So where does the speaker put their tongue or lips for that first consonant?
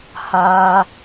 throat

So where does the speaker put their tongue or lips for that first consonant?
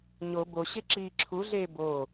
palate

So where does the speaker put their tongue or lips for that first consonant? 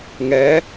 velum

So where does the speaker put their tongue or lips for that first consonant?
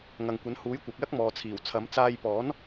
velum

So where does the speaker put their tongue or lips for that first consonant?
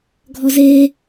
velum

